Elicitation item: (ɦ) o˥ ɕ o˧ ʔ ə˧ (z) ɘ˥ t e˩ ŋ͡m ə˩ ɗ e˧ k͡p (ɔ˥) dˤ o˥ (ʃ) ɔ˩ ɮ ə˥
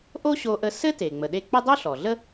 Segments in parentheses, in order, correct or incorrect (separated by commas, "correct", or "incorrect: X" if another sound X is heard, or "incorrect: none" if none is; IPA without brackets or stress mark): incorrect: ʔ, incorrect: s, incorrect: ə˥, incorrect: ɬ